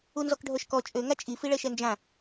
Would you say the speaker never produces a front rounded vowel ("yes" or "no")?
no